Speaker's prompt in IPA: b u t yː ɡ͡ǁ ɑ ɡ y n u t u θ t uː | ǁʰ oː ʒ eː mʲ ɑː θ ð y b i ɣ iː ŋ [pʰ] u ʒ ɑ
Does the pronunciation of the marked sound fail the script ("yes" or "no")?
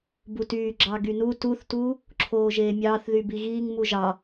yes